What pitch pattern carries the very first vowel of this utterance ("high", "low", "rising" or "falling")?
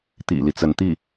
low